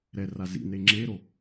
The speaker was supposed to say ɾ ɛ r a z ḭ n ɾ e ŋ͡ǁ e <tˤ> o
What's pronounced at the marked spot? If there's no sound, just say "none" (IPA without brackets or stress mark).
ɾ